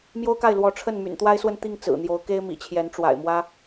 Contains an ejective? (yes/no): no